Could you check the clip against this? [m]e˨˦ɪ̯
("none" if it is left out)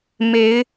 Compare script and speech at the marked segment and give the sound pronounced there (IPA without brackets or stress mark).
m